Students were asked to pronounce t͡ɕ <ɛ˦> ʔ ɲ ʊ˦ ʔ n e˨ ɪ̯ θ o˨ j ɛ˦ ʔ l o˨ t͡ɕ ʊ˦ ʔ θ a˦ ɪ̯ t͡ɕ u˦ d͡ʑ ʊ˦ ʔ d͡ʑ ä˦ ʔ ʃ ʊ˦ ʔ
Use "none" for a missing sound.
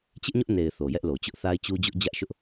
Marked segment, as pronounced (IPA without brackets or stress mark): ɪ˦